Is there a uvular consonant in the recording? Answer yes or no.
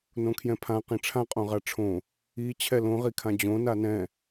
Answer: yes